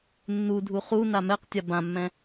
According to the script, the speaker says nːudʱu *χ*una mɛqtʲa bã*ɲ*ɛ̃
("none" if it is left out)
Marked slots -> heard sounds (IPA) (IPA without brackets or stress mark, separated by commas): χ, mː